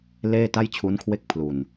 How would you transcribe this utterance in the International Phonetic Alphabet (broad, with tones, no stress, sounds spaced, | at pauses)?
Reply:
l eː˥˩ t a˥˩ j t͡ɕʰ u˦˥ n kʰ w e˥˩ k̚ pʰ l u˨˩ n